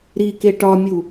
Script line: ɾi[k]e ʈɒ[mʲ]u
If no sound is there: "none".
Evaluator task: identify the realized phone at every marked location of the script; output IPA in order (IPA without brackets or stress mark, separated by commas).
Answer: k, mʲ